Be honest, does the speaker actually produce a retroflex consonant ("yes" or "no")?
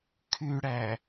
yes